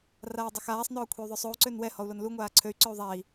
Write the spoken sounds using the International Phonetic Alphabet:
raːdˤoxaːsˤnɔː kʷʰey̯ðˤøsˤou̯ ǀønwɛ hɔu̯lonlu ŋʷaːǀʰøy̯ǀøu̯ ðˤai̯

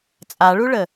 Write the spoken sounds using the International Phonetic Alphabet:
t͡sʼaɭuɭə

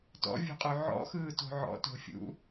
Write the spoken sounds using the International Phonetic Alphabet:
tɔ̰vʲṳqʼʉ ʕɔ̰xɯːto̤ ʕɔ̰to̤fʲṵ

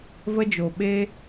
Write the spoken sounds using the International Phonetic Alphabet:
və˧d͡ʒo˨ ɓe˦

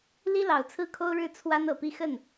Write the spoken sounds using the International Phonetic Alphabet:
li˥lɑ˨˩ʊ̯t͡sʰɹ̩˥˩kʰo˥ʊ̯ ɻɻ̩˥˩ t͡sʰwa˥nɤ˨˩pi˥˧ xə˥˩n

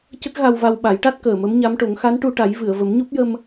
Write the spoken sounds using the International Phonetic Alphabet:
cə˦˥k̚ɣa˧wva˧w ɓa˨˩˦jʈa˦˥t̚ kəː˨˩mə˧˥m ɲa˧˥mʈo˨˩˦ŋ xa˧˥nʈu˧ ʈa˨˩˦jvɨ˨˩˨ə̯ və˨˩˦mɲo˦˥p̚jə˧m

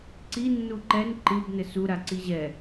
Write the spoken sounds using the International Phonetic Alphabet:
ǀi nːuǃɛn ǃɨb nɘsu ɾaǀiʑɛ

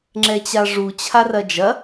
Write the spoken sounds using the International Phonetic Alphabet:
ŋ͡ǁɛt͡ɕaʐu t͡ɕʰarɐd͡ʒɐ

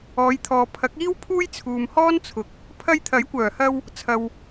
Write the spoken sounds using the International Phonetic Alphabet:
ɔː˨˧jt̪ʰɔː˨ pʰɐ˨˥k̚iː˥wpʰuː˥j t͡sʰuː˨mhɔː˥nt͡sʰʊ˨˥k̚ | pʰɐ˧jt̪ʰɐ˨˥jkʷœː˨˩hɐ˧w | t͡sʰɐ˨w

